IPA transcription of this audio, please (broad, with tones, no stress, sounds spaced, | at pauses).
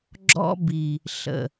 ɡ͡ǁ ɔ̰˦ b i˨ | ɬ ə̰˨